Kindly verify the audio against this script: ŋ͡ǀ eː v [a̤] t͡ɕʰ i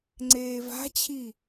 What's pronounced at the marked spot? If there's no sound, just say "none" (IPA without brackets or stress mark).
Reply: a̤